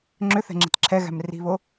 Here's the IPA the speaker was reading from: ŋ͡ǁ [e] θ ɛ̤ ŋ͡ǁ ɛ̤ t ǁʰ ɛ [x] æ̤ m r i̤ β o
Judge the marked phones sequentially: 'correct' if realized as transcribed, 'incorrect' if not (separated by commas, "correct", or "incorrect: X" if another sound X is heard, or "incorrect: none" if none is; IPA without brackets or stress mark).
incorrect: ø, incorrect: ɣ